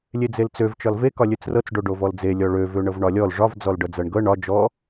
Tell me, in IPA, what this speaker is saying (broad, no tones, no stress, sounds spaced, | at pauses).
lʲ e d͡z e l t͡s ø v t͡ʃ ɒ l v e k ɒ lʲ ø t͡s r ɤ t͡s ɖ o ɖ o v ɔ l d͡z e lʲ ɔ ɭ ø v ø ɳ ɤ v ɳ ɒ lʲ ɔ l ʐ ɒ v d͡z ɔ l ɖ ɤ d͡z ɤ ɳ ɡ ɤ ɳ ɒ d͡ʒ ɔ